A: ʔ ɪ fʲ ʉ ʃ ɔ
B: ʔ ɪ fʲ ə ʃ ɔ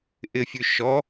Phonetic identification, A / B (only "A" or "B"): A